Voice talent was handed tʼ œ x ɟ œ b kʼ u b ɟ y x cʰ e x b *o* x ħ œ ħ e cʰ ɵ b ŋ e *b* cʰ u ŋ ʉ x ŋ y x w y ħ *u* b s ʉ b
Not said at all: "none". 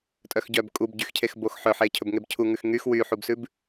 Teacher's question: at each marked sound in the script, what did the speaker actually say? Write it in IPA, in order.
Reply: o, b, u

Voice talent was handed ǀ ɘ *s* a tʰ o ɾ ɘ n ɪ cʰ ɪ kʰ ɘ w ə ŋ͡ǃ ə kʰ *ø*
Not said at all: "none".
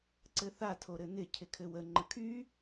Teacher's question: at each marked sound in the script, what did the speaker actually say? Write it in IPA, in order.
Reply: θ, y

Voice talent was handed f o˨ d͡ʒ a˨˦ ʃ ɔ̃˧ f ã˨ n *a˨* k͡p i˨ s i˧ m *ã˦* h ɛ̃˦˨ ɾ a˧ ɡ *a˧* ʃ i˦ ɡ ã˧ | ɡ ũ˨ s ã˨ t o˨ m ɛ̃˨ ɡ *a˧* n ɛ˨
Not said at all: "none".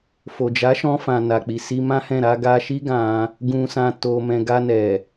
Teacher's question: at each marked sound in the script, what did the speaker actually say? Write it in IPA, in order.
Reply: a˨, ã˦, a˧, a˧

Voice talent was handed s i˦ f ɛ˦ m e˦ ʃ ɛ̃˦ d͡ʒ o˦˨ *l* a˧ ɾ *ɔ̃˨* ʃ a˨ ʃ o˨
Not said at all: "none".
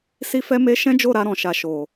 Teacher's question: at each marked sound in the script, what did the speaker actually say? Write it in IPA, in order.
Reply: ɾ, ɔ̃˨

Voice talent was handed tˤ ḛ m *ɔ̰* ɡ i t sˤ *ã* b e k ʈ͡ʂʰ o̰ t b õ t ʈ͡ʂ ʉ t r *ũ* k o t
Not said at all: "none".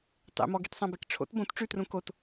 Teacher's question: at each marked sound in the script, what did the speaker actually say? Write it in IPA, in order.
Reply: ɔ, ã, ũ

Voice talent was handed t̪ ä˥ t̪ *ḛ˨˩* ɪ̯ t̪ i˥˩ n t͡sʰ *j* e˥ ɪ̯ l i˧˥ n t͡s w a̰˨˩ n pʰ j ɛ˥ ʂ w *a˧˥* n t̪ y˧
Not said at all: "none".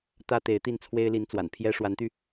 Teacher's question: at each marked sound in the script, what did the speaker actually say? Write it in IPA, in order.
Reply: e˧˥, w, a˧˥

